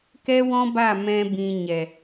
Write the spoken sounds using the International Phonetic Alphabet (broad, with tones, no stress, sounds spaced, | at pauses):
k ɛ˦ w ɔ̃˦ b a˦˨ m ɛ̃˦ b ĩ˧ ɲ ɛ˨